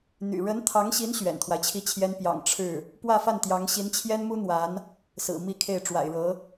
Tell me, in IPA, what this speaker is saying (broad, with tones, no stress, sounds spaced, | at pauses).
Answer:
n̪ y̰˨˩ ɻ ə˧˥ n t̪ʰ ɑ˧˥ ŋ ɕ i˧˥ n ɕ ɥ ɛ̰˨˩ n t̪ʰ w a˦ ɪ̯ t͡ɕʰ i˥˩ t͡ɕʰ j ɛ˥ n p j ɑ̰˨˩ ŋ ʈ͡ʂʰ ɻ̩˥˩ | p w ä˥˧ f a˥˩ n t̪ j ɑ˧˥ ŋ ɕ i˧˥ n t͡ɕʰ j ɛ˥ n m u˥ n̪ w a˧˥ n | s ɹ̩˨˩ m i˥˧ kʰ e˥˩ ɪ̯ ʈ͡ʂ w a̰˨˩ ɪ̯ ɻ ɤ˧˥